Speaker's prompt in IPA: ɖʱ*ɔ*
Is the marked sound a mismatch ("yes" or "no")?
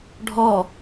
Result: no